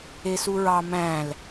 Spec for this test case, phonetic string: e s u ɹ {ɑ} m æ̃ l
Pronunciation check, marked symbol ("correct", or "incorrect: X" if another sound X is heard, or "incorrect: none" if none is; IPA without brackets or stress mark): correct